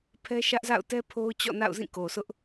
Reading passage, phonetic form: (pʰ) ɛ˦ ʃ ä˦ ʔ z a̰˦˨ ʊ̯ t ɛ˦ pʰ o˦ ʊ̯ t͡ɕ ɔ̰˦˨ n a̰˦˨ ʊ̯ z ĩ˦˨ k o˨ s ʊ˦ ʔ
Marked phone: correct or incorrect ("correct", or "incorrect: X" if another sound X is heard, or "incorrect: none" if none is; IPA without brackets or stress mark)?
correct